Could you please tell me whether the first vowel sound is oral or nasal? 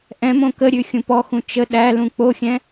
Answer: nasal